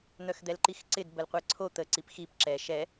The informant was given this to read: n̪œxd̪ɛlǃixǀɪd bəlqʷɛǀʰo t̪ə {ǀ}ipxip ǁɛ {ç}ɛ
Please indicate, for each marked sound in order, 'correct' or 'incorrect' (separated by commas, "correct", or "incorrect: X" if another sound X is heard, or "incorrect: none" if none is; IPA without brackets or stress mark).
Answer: correct, incorrect: ʃ